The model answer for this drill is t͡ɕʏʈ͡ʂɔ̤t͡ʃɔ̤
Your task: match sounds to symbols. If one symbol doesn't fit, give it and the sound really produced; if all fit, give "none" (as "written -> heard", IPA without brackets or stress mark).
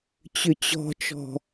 ʈ͡ʂ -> t͡ɕ